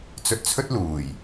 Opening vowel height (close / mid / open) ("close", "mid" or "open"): mid